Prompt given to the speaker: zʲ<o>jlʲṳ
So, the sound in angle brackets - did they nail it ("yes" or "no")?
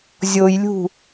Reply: yes